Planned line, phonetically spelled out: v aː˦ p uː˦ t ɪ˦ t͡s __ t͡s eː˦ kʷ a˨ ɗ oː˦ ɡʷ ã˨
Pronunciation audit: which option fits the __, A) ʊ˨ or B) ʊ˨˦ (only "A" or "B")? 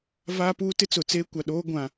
A